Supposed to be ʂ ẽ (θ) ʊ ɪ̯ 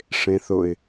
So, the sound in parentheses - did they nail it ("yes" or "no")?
yes